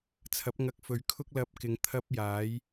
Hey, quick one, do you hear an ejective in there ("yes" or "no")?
no